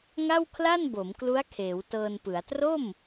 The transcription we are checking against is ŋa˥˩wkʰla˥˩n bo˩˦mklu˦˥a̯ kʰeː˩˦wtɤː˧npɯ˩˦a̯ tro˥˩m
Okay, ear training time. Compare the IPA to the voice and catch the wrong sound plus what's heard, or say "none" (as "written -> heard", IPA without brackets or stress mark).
none